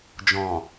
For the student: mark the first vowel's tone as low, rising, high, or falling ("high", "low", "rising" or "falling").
low